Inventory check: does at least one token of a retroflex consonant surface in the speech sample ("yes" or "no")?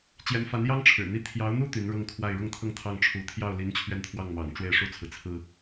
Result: yes